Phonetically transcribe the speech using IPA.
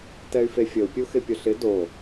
t ɛ y̯ f e fʲ ə u̯ pʲ u x ɪ pʲ ʊ ɬ ɪ d o

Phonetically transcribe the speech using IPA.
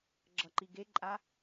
ɡ͡ǁ ʌ ǃ i ɡ e ǃʼ a

